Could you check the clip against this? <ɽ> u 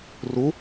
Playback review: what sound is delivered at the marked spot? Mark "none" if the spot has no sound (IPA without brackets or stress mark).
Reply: r